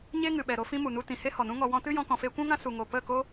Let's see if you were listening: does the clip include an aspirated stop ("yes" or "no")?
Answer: no